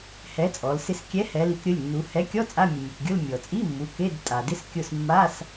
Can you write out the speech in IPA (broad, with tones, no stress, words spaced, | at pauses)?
hɛ˨˥t͡sʼɔ˩˧lsɪ˦˨s kʲɛ˨˥hɛ˩˧li˩˧k ɾʲʊ˩˧˩lʲnːu˩˧ hɛ˨˥kʲɔ˧˥˧ t͡sʼa˧˥˧mʲʊ˩mʲe˩kɡʲʊ˧˥˧l mʲɔ˩t͡sʼi˧˥˧ mːu˩˧˩ ke˧˥˧d tʼa˩dɪ˧˥˧skʲʊ˦˨s mːa˧˥˧s